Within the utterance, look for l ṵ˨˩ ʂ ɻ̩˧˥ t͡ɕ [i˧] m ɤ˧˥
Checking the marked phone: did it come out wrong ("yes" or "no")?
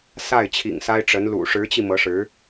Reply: no